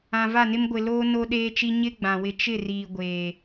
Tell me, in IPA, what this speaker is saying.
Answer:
ã˨ v a˦˨ n ɪ˦ m ɡʷ ɪ˨ l oː˦ n o˦ ɗ eː˦ t͡ʃ i˦ ɲ ɪ˦ ɡ͡b ã˨ w ɪ˦ t͡ʃ ɪ˦˨ r iː˨ ɡʷ eː˨

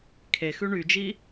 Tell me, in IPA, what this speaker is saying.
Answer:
kʰ e x ʉ ɳ y d͡ʒ i

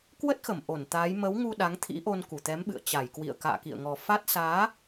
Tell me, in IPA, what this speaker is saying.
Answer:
k w ə˦˥ t̚ x ə˧˩ m ʔ o˧˩ n t̪ aː˨˦ j m ə˨˦ w ŋ u˧ ɗ a˨˦ ŋ t̪ʰ ḭ˧˥ ʔ o˧ n k u˧˩ t̪ ɛ˨˦ m ɓ ɨ̰˧˨ ə̯ t͡ɕ a˧˩ j k w ḭ˧˨ ə̯ k a̰ː˧˨ k ḭ˧˨ ə̯ ŋ ɔ˨˩ f a˦˥ t̚ s aː˨˦

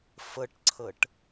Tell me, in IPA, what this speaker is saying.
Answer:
f ə ʈ ǀʰ ə ʈ

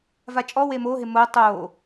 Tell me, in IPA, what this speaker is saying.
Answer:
v a t͡ʃʼ ɔ w eː m oː ɦ ɪː m oː tˤ oː

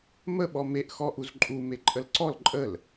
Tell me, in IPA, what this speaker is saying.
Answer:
m ə ɓ ɔ m e ʔ x ɔ ʔ u z ǃʼ u m e ǃʼ ə l ǀ ɔ l ǃʼ ə l

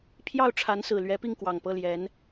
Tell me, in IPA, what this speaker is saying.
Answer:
pʰ j ɑ˥˩ ʊ̯ ʈ͡ʂʰ a˧˥ n s ɹ̩˨˩ l ɥ ɛ˧˥ p i˥˩ ŋ k w ɑ˨˩ ŋ p ɤ˥˩ l j ɛ˧˥ n

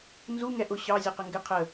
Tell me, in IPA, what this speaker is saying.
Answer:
n z u ŋ ɛ ʔ ʊ ɕ ɑ zʲ ʌ q ə ŋ ɡ ɪ qʰ ə

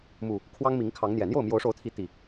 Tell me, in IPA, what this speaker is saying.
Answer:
m u˨˩ | kʰ w ɑ˦ ŋ m i˨˦ ŋ kʰ ɑ˨˦ ŋ n̪ j ɛ˨˩ n̪ j o˥˨ ʊ̯ m j o˨˦ ʊ̯ ʂ o˨˦ ʊ̯ t̪ʰ i˨˦ t̪ i˨˩

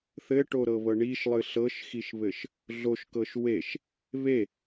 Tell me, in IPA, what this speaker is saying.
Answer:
θ ɘ ʈ o ɾ ɤ β ɤ ɳ i ʃ lˠ ɨ ɬ ɤ ʃ x i ʃ β ɘ ʃ | ɮ o ʃ k ɤ ʃ w e ʃ | β e

